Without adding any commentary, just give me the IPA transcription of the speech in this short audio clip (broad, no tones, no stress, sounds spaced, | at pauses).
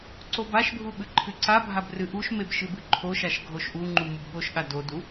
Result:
ǀ o b a ʃ bʱ u ɓ ɨ ǃʰ ɨ ǀ a bʱ a b r ɨ ʔ u ʃ m e b ʃ ɨ b ɨ ǃʰ o ʃ a ʃ ɡʱ o ʃ ʔ u ŋ͡ǃ u m u b ɠ o ʃ ɠ a d o d u